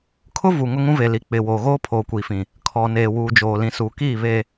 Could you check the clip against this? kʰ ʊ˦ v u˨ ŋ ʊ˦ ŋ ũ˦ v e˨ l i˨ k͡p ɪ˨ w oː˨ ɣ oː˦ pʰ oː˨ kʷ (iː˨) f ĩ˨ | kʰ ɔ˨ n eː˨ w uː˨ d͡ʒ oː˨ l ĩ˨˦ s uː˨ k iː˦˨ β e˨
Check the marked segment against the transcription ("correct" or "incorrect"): correct